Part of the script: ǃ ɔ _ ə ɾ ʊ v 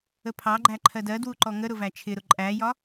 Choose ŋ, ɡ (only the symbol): ŋ